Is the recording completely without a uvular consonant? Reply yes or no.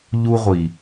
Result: no